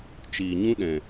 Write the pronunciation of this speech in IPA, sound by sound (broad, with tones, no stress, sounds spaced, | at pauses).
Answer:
t͡ʃ iː˨ ɲ ũ˦ ɗ ɛ̃˨